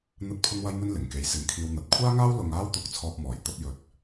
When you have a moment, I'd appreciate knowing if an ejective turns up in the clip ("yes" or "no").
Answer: no